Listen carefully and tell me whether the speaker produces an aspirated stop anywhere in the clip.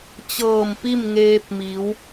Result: no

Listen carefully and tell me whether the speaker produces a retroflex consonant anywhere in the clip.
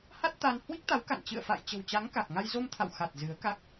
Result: no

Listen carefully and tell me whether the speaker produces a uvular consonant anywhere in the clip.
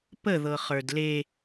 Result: yes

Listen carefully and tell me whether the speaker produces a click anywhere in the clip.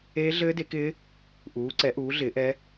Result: yes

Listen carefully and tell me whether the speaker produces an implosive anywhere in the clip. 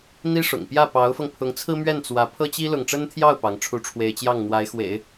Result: no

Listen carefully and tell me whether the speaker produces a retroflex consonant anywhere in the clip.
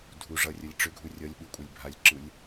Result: yes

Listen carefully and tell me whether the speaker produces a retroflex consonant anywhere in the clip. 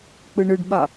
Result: yes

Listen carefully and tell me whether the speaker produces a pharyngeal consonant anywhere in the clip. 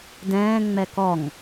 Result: no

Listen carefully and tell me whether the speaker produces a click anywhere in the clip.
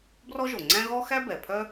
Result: yes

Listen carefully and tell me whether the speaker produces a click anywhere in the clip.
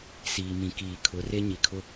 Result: no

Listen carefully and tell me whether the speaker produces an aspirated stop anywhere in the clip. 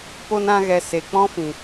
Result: no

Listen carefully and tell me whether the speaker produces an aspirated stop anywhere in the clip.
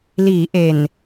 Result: no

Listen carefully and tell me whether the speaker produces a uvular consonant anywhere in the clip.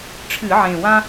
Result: no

